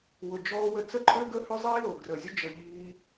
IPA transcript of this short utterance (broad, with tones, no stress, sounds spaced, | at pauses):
w ʊ˨ d͡ʒ ɔː˧ w ə˧ t͡s ə˦ ǃʼ ø˦ ɡ ə˦ h ʏ˦ zˤ iː˦ l o˨ ɡ r ə˨ zʲ ʊ˦ d͡ʒ ə˧ ʎ iː˧